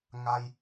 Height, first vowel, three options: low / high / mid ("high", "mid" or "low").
low